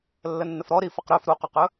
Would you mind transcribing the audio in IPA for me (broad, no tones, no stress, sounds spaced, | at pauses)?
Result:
lː ə nː ə f ɾ ɔ ɾ i f ə q ɾ ɵ f ɾ u q ʉ q ɵ